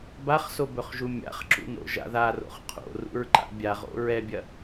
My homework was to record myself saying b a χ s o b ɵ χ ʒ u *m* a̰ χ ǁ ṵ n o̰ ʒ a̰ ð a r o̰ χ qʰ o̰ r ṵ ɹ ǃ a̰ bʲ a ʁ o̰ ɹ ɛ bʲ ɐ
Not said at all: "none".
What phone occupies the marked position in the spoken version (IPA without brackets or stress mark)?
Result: mʲ